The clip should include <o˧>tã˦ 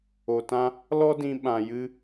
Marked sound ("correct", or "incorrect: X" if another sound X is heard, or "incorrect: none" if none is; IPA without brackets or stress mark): correct